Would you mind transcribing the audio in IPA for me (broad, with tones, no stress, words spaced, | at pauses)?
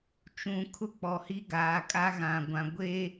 t͡ʃũ˨kʰʊ˦k͡pɔ˨hi˦ ɡaː˨kʼa˦ɣã˨ɡʷã˨ ɡʷe˦